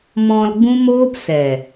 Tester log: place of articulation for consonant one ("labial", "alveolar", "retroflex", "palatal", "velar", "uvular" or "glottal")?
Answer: labial